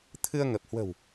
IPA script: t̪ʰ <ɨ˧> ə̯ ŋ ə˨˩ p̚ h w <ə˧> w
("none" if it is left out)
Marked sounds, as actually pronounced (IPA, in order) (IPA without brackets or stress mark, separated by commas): ɨ˧, ə̤˨˩